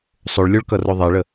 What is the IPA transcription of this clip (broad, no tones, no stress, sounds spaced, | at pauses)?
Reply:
sˤ o ɭ lʲ o ɭ k ʌ r o ðˤ e ɭ ə